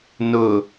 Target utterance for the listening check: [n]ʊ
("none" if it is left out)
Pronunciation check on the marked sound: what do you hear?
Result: n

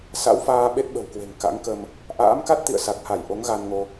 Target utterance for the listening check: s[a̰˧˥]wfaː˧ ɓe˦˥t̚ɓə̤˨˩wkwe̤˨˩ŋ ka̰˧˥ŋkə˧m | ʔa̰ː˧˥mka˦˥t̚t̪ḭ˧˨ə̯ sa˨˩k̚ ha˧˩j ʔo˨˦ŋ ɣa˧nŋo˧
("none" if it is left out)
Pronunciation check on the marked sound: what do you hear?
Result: a̰˧˥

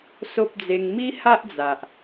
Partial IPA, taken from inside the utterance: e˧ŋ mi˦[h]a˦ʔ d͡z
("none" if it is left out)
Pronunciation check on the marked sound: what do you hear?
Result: h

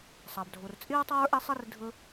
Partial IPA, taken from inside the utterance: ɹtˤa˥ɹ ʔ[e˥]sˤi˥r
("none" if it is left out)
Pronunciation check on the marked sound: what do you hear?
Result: e˥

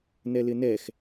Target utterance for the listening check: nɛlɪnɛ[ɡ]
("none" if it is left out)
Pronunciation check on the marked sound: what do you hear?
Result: x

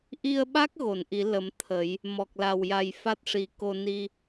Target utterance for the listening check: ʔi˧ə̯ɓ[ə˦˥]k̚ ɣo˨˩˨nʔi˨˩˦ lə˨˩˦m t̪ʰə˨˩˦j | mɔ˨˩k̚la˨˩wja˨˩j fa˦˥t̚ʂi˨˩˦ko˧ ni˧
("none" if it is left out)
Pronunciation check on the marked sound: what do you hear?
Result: a˦˥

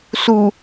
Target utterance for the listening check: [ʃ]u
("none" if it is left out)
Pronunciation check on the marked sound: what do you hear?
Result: s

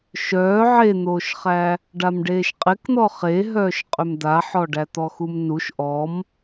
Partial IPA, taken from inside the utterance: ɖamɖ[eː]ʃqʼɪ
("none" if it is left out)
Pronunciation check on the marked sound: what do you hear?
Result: eː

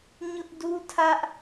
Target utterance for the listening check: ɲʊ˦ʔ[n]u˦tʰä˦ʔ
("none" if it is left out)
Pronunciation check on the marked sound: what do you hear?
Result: d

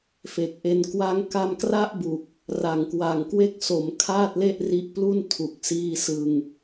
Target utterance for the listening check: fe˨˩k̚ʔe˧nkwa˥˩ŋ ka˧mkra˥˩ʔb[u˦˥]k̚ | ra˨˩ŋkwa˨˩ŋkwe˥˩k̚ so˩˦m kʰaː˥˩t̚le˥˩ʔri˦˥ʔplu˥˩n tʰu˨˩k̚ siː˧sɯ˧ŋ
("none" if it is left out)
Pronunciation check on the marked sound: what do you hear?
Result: u˨˩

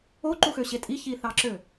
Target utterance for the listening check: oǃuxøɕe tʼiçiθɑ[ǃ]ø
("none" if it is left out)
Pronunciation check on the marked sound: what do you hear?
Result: ǁ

